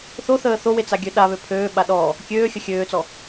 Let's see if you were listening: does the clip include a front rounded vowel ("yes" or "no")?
yes